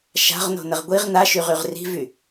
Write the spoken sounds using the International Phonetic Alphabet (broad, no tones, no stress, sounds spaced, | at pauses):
ʃ a̤ ʁ n o̤ n ə ʁ ɡʷ i ʁ n a ʃ y ʁ y ʁ r i̤ v y